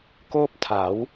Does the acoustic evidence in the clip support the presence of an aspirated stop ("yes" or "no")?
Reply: yes